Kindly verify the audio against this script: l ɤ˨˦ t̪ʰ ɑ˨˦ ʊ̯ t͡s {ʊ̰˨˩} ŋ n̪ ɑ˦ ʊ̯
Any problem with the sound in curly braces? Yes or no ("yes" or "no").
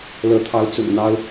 no